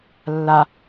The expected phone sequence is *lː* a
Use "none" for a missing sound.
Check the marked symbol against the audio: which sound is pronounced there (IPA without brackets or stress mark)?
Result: lː